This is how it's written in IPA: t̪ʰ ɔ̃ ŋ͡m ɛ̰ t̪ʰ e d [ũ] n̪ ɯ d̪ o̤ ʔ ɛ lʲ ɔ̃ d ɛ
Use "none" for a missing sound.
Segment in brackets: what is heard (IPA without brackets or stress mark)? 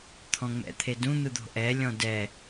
ũ